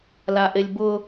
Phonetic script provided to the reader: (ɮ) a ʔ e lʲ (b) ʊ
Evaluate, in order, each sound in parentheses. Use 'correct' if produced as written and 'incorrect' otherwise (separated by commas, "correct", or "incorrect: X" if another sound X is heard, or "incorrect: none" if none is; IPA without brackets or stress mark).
incorrect: l, correct